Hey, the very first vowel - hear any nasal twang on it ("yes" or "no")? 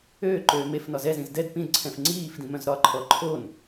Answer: no